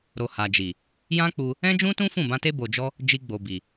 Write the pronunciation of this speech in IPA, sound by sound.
ɾ o˨ h a˨ d͡ʒ i˨ | j ã˦ k͡p u˧ | ɛ̃˦ d͡ʒ ũ˦ t ũ˦ f ũ˦˨ b ã˧ t e˦ b o˧ d͡ʒ ɔ˦ | d͡ʒ i˧ ɡ͡b o˨ b i˨

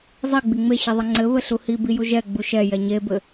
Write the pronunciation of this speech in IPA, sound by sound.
zˤ i ɡ͡b i ŋ͡m e ɕ i ðˤ ɘ ŋ͡ǀ ɘ β ɘ ɬ u h i b i j u ʒ ɛ ɡ͡b u ʃ ɛ j ɛ ɲ e b ɘ

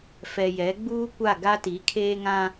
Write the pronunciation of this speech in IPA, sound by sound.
f ɛ˨ j ɛ˨˦ ɡ͡b uː˦ kʷ a˦˨ ɡ a˦ t i˨˦ kʰ eː˦ ŋ ã˦

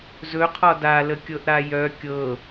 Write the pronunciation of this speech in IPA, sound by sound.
z ɵ qʰ ɒ d a l ə kʲ ɤ ʔ ɾ a j œ kʲ ɤ

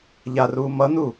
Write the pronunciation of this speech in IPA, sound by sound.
ʎ a r uː m ʌ n u

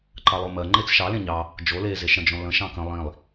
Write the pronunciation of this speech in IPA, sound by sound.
ǃ ɑ lˠ o m ɜ ŋ͡ǃ e t͡s ʃ ɑ l ẽ ɲ ɑ | d͡ʒ o l e z e ʃ ɽ ə̃ d͡ʒ õ l ə̃ ʃ ɑ̃ k ə̃ lˠ ĩ lˠ

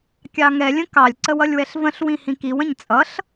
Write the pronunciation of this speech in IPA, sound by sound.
kʲ ɑ ŋ ɛ lʲ ə̃ k ɑ lʲ ǀ ə w ʌ lʲ w ɛ ɬ v ə̃ ɬ w ĩ h ĩ k i w ə̃ ɲ t͡sʼ ʌ ɬ

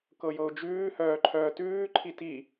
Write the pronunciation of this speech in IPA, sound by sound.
k ɤ j ɤ ʊ̯ d͡ʒ ʉː h œː ǃʰ œː t ʉː ǃʰ i t i

